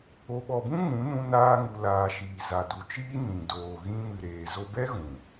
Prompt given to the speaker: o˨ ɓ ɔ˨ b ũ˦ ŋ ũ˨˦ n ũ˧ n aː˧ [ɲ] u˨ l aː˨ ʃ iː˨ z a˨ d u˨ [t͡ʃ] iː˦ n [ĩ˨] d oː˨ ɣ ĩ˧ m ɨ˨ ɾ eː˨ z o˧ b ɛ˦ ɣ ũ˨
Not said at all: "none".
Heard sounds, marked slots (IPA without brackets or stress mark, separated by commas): ŋ, t͡ʃ, ĩ˨